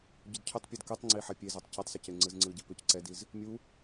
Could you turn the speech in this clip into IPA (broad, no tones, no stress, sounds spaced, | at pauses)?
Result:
ɟ ʏ d cʰ ʏ tˤ pʲ ɛ d k ɯ tˤ ŋ͡ǀ i ħ ɛ pʲ e z œ tˤ c e tˤ s ʏ c e ŋ͡ǀ ɯ z ŋ͡ǀ ɯ ɟ ɛ p ʏ c ǀ ɛ d i z | mʲ u